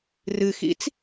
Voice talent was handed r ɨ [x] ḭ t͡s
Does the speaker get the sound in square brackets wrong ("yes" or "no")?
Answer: no